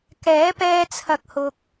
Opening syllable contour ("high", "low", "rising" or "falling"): rising